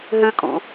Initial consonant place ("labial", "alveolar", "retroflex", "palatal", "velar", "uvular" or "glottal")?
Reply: glottal